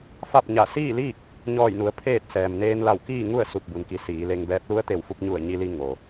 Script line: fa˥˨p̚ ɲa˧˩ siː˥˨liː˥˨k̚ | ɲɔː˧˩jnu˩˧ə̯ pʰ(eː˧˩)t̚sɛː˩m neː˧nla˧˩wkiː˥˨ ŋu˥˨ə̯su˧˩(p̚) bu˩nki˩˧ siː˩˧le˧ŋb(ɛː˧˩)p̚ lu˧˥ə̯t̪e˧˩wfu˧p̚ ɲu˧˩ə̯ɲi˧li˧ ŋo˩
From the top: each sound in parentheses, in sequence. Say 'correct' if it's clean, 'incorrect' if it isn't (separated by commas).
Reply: incorrect, correct, incorrect